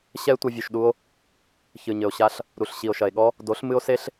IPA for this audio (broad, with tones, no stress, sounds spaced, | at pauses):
ɕ ɛ˦ e̯ tʷ ɐ˧ vʲ u˨ ʃ ɗ u˧ o̯ | ç ɨ˨ ɲ ɘ˨ o̯ ɕ a˧ ɬ | ɾ u˨ ɬ ɕ i˨ o̯ ʃ ɐ˨ e̯ ɠ ɔ˦ | d o˨˦ ɬ m ɨ˦ o̯ s e˦ ɬ